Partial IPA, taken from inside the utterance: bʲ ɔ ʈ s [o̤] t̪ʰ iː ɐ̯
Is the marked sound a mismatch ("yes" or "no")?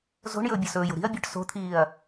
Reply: no